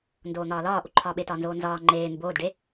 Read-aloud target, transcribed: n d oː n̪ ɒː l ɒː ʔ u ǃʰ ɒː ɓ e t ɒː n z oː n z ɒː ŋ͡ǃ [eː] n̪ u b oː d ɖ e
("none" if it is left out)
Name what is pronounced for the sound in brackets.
eː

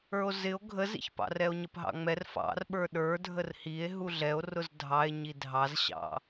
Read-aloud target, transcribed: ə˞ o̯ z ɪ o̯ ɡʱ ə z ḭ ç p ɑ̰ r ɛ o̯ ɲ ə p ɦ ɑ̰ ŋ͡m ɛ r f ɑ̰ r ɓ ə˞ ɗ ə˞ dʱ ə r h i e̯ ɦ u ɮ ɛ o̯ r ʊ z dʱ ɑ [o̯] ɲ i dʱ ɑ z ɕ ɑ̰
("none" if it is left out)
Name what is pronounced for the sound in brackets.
e̯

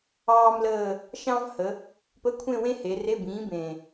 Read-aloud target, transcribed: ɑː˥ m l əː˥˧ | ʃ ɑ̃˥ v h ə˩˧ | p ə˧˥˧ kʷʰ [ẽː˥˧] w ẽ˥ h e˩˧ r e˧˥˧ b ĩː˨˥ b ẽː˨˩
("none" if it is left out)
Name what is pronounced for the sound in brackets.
ẽ˥˧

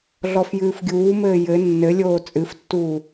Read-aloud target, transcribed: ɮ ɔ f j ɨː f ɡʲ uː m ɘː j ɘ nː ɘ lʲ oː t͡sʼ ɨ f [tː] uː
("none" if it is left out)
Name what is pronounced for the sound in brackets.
tː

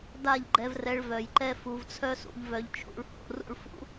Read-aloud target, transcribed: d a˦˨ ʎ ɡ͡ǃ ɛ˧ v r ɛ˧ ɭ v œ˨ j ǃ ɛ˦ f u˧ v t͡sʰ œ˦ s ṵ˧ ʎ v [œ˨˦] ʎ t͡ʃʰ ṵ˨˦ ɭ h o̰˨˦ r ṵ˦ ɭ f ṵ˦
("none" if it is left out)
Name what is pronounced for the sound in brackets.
œ˧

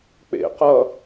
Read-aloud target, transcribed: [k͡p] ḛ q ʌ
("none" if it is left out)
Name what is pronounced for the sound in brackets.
k͡p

